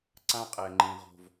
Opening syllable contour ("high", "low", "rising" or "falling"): high